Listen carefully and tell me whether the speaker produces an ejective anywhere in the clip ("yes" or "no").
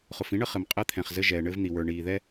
yes